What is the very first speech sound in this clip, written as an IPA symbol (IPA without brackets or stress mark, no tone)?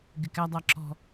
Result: ɡ